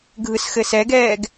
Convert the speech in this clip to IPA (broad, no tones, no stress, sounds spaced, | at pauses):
ɡʱ ɯ s x ɘ s ɛ ɡ ɛː ɡ